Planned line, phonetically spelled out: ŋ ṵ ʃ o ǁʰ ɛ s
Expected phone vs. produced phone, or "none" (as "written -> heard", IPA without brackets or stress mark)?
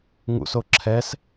ʃ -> s